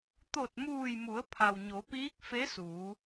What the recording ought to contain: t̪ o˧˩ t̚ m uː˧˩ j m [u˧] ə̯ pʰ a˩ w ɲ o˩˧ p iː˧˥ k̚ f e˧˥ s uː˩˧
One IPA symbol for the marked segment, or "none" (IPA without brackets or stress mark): u˩˧